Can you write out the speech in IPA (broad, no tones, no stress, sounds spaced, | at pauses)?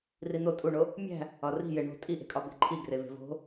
r i n̪ o tʼ u ɳ o | mʲ æ̤ | ɒ r i̤ j e ɳ o̤ tʼ i ʔ e̤ kʼ ɒ b e̤ ǃʰ i ɡ r e v e̤ v o̤